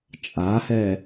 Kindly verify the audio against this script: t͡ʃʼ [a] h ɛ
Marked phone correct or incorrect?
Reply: correct